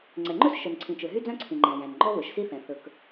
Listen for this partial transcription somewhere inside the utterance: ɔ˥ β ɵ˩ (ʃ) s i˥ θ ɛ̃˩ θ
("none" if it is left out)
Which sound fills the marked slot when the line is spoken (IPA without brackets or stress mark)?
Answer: ʃ